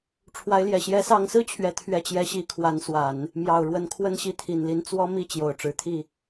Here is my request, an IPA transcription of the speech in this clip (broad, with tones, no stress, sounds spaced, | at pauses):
ʈ͡ʂʰ w a˧˥ ɪ̯ l j ɛ˨˩ ɕ j ɛ˧˥ s ɑ˧˥ ŋ s ɹ̩˥ t͡ɕʰ ɥ ɛ˧˥ t̪ʰ ɥ ɛ˥˩ t͡ɕ j ɛ˥ ɕ i˥ kʰ w a˧˥ n s w a˨˩˦ n | m j ɑ˨˩ ʊ̯ ɻ w ə˧˥ n kʰ w ə˥˧ n ɕ i˥˩ t̪ʰ i˨˩ n l i˧˥ n t͡s w ɔ˥ m i˥˩ t͡ɕ j o˨˩ ʊ̯ ʈ͡ʂ ɻ̩˧˥ t̪ʰ i˥˩